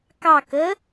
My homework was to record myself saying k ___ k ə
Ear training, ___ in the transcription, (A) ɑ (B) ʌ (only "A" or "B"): A